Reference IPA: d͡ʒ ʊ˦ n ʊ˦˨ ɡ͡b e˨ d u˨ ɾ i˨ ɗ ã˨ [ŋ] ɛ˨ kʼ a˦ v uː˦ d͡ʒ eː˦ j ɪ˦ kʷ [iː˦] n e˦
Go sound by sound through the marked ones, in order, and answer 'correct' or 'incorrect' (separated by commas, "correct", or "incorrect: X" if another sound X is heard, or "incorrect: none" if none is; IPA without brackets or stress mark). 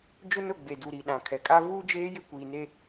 incorrect: kʰ, incorrect: iː˨